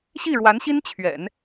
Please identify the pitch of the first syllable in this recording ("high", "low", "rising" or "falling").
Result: falling